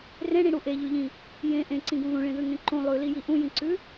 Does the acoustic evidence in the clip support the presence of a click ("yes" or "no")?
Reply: yes